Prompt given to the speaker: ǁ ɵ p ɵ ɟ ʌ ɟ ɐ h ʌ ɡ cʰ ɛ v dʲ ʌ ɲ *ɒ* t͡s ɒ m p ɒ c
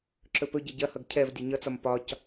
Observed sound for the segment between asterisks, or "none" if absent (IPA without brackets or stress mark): ʌ